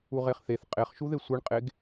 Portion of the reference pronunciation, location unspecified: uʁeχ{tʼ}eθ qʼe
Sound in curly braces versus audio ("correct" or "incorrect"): incorrect